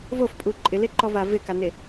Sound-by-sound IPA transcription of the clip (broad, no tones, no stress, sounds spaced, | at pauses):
v o f pʼ u ǃʼ ɪ l e ǃ ɔ v a v ɪ k a n e